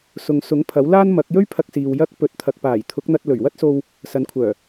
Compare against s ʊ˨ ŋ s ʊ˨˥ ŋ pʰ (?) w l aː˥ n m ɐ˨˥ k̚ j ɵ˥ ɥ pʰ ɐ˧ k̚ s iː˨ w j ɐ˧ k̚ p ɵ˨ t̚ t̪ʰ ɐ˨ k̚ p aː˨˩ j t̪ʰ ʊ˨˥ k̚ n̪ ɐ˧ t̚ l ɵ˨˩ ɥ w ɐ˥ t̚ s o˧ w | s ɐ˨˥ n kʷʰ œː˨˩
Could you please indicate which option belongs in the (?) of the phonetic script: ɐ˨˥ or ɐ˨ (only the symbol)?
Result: ɐ˨˥